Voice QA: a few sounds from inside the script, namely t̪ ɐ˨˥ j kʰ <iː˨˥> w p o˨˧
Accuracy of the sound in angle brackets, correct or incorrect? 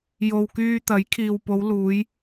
incorrect